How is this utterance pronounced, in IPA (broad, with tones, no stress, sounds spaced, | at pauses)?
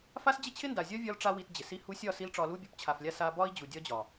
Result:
f a˦ s d͡ʑ ɪ˦ t͡ɕʰ ɪ˦ n d a˨ zʲ ɒ˦ vʲ ɒ˧ l ʈ͡ʂ a˧ w i˧ t d͡ʑ ɪ˨ s i˦ h u˧ sʲ ɒ˦˨ s i˦ l ʈ͡ʂ ɒ˧ l u˦ bʲ u˨˦ p t͡ɕʰ a˨ f lʲ a˦ s a˧ b ɒ˦ i̯ d͡ʑ u˨ dʲ ɒ˦ d͡ʑ ɒ˨